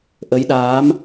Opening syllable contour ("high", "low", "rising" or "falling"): rising